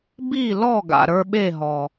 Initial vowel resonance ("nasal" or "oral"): oral